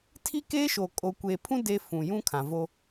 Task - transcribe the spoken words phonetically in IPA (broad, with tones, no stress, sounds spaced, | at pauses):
tʰ i˦ k eː˦ ʃ o˨ kʼ o˨ kʷ eː˨ pʰ ũ˦ d e˦ f ũ˨ j ũ˦ kʰ ã˨ v o˦